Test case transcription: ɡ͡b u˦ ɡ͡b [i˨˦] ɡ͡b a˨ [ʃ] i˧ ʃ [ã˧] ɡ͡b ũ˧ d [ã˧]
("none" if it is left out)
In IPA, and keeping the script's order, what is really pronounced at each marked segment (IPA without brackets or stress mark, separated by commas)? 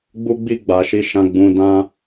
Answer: i˦˨, ʃ, ã˧, ã˦